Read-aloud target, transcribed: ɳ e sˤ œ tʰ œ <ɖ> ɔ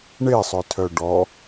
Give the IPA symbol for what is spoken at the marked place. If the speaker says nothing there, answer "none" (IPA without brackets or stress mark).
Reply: ɖ